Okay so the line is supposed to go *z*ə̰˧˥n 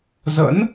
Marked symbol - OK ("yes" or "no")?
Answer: yes